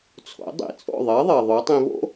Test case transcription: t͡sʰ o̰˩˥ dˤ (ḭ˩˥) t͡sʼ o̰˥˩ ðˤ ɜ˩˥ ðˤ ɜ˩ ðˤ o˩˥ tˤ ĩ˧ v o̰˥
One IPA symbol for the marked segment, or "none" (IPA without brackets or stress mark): ḭ˩˥